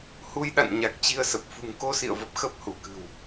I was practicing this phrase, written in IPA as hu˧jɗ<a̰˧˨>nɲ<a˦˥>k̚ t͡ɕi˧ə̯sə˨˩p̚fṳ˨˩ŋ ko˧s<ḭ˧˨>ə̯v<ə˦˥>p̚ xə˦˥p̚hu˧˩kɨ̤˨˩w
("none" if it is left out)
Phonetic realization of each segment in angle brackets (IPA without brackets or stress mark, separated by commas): a̰˧˨, a˨˩, ḭ˧˨, ə˨˩